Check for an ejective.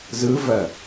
absent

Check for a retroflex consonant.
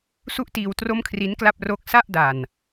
absent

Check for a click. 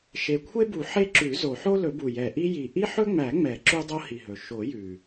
present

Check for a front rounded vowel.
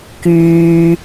present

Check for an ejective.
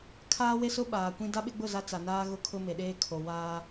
absent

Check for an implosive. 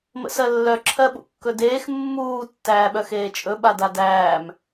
present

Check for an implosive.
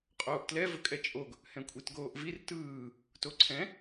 absent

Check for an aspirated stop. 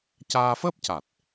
absent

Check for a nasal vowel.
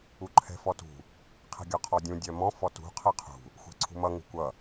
present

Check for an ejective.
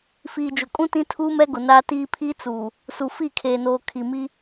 present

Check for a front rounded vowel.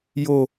absent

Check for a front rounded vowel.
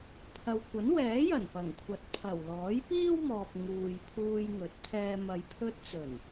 absent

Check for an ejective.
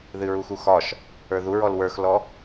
absent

